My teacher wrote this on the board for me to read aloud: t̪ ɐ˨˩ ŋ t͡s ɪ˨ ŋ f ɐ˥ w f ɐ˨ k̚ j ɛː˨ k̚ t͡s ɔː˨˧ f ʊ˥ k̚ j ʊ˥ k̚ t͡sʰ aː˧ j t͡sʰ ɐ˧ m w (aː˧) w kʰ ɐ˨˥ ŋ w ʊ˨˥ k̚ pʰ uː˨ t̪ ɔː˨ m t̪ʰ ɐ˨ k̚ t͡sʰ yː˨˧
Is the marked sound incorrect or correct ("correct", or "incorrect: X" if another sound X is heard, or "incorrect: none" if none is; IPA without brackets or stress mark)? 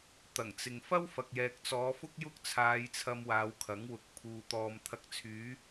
incorrect: aː˨˧